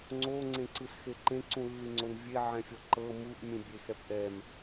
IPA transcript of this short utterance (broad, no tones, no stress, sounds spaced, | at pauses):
ŋ͡ǀ o ŋ͡ǀ ẽ ǀ ɯ s x e ǃ ẽ ǀ ũ lː i ŋ͡ǀ o n vʲ e ʕ ɛ̃ fʲ ɔ ǃ ɤ m u ʔ mʲ ũ bʲ e x ɛ p ʔ ɛ m